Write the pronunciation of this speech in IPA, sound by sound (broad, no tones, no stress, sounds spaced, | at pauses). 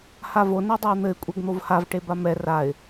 h a v o n ɛ dˤ ɛ ɪ̯ n̪ ɘ ɪ̯ kʷʼ ɛ ɡ n̪ o v h a v ʈ e b a m ɛ r a ɪ̯